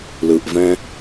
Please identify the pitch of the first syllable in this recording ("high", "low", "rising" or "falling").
low